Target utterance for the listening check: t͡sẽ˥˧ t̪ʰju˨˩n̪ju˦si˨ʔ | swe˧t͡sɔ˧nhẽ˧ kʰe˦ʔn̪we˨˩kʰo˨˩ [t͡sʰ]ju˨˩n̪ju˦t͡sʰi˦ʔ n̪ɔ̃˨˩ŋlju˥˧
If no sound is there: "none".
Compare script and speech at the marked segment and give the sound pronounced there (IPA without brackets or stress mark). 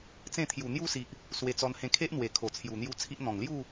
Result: t͡sʰ